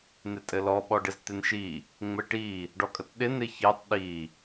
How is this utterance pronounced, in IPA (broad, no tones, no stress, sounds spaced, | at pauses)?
n̪ ɪ tʼ ɘ l ɔ ɓ ɔ ɖ ɪ z t̪ ɪ n ʃ i | ŋ͡m ɘ ʈ i | ɖ ɔ kʼ ə t ɗ ɪ n̪ ɪ ç ɘ tˤ ɗ i